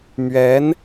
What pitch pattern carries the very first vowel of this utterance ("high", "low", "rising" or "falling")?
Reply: rising